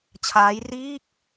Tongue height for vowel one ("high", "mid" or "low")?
low